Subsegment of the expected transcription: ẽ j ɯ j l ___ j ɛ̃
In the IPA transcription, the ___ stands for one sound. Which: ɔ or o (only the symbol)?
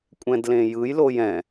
o